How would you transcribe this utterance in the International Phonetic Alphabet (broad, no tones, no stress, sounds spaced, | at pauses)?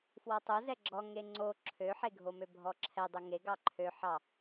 f w ɔ tˤ o z ɛ ɡ͡ǁ ɔ ŋ e ŋ͡ǀ o ǁʰ ø ħ e ɡʱ o m ø bʱ ɔ ǁʰ ɛ dˤ o ŋ e ɡ ɑ ǃʰ ø ħ ɑ